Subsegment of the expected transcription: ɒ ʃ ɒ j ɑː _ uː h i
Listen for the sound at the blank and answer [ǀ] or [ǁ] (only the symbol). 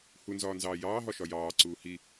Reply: ǀ